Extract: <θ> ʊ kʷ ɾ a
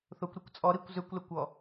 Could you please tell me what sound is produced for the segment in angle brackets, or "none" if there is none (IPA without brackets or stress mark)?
θ